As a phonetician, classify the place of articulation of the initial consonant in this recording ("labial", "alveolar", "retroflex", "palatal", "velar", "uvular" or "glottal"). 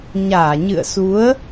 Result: palatal